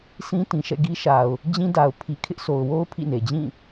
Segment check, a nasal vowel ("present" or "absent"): present